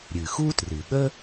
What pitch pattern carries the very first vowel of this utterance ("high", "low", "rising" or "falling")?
low